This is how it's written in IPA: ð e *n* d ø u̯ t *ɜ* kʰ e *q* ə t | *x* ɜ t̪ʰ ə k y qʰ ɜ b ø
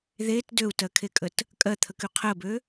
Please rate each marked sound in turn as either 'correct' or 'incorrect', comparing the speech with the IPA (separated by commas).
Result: incorrect, correct, incorrect, incorrect